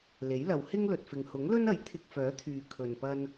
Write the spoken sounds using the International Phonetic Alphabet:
le˨˥jlɐ˨˧w hɪ˥ŋlɵ˨t̚fɪ˨ŋ hʊ˨˥ŋlɵ˥nɐ˨˥j t̪ʰɪ˧k̚fœː˨˥t̪ʰyː˨ kʰɵ˨npɐ˧n

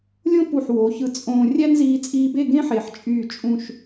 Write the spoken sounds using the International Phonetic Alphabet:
lʲõ˥pu˧˩ħ wo˩˧çɯ˧˩ t͡sʼõː˧ rʲæ˥nziː˧t͡sʼiː˧be˥˧ ɡẽ˥ħe˩˧ħt͡ʃʼyː˧˩ t͡ʃʼũ˥˧ʃ

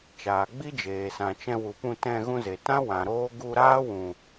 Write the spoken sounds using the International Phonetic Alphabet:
t͡ʃaː˨ɡ͡bi˦d͡ʒeː˨ sã˨t͡ʃɛ̃˧wu˨pũ˧ tɛ̃˧ ɣũ˧ze˨tã˦ wã˨ ɾoː˦ ɡu˧ɾaː˦ wũ˨

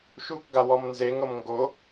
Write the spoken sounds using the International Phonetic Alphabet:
ʃukɡawɔm nzeŋɤm ŋɡo

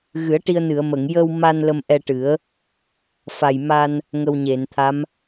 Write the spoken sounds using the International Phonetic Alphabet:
ɣɨ˨˩˦ə̯ʈi˧ə̯nɨ˨˩˨ə̯mə˨˩˨ŋ jə˧wma˧n lə˧mʔɛ˧ʈɨ˨˩˦ə̯ | fa˨˩j ma˧n | ŋə˧wɲe˨˩˨nt̪ʰa˧˥m

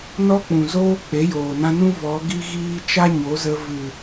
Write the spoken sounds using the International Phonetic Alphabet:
nɔ˦k͡pũ˨zoː˦ k͡pe˨˦joː˨nã˧nũ˦ vɔ˨˦ ɡi˦ɣiː˦ t͡ʃa˦ɲo˨˦zə˧ vɨ˨

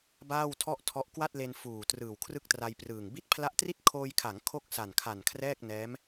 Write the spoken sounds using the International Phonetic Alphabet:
baː˥˩wtʰɔ˥˩ʔtʰɔ˦˥ʔ kwa˥˩t̚le˧n fuː˨˩ trɯː˨˩wkʰrɯ˥˩k̚tra˧jprɯː˨˩ŋ bi˦˥t̚pʰla˦˥ʔtri˥˩t̚ kʰoː˧jkʰa˩˦ŋ kʰo˥˩k̚sa˨˩nkʰa˨˩n kʰrɛː˥˩k̚nɛː˦˥m

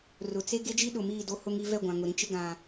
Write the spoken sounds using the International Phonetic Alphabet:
rʊ˨t͡se˦ ɡe˦d͡ʒi˦ɗʊ˨ miː˦˨do˦hʊ˦ŋi˨˦ vɛ˦˨ɡʷã˨ŋʊ˨ ɾĩ˦t͡ʃɪ˦ ɡã˨

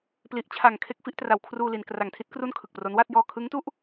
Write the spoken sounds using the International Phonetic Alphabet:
pli˨˩ʔt͡ɕʰa˨˩ŋkʰe˦˥k̚ fi˦˥ʔtra˨˩wkʰruː˧li˩˦n kra˨˩ŋtʰi˦˥t̚kru˥˩n kʰɯ˨˩k̚pro˦˥n wa˥˩t̚ jɔː˧kʰɯ˦˥ŋtu˥˩ʔ

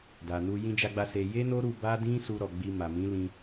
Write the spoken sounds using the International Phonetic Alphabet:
da˨nu˧ jĩ˧d͡ʒa˧ɡ͡ba˧ se˧ je˦no˦ɾu˧ ba˦dĩ˦su˧ ɾɔ˨ɡ͡bi˧ma˨ mĩ˨˦lĩ˧

